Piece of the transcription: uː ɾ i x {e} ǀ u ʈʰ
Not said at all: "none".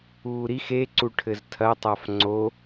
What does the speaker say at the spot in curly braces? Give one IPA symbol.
e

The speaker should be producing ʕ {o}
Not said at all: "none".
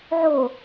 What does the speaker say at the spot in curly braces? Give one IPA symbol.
o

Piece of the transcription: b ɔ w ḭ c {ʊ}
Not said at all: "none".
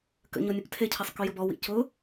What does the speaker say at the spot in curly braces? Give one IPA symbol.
ʊ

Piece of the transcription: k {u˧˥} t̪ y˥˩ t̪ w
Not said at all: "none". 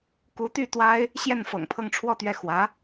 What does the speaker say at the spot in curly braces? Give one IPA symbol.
u˧˥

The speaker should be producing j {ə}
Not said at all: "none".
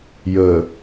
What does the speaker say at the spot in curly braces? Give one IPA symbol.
ə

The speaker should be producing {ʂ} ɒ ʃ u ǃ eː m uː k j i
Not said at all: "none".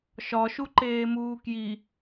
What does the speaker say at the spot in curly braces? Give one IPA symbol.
ʃ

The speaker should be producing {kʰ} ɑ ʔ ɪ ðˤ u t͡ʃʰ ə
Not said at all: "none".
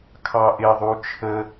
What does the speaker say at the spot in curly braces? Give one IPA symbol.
kʰ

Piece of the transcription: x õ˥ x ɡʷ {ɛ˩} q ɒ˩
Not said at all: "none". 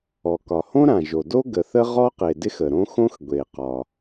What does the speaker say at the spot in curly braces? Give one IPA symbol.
e˩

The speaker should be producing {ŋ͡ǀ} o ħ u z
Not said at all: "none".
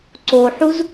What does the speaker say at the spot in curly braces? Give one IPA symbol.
ǀ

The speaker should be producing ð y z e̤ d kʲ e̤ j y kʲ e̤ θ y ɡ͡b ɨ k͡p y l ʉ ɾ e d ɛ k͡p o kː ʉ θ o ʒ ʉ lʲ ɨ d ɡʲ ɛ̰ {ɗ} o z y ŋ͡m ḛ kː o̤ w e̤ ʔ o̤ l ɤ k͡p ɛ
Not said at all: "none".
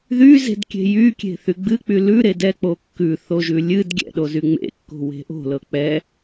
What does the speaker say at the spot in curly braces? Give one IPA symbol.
ɗ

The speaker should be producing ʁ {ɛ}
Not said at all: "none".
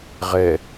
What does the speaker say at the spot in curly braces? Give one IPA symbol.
ɛ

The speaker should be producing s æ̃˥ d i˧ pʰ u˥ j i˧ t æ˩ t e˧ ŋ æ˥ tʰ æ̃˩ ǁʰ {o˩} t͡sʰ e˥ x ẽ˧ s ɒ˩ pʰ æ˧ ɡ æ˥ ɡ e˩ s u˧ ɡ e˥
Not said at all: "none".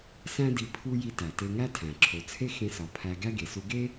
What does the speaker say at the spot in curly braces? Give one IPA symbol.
o˩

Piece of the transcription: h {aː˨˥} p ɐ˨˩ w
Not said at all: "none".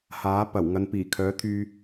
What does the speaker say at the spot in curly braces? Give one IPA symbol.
aː˨˥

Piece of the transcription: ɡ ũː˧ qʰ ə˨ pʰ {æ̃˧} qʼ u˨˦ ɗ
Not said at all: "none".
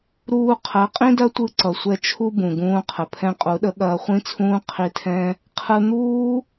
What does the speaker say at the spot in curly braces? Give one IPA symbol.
ɛ̃˧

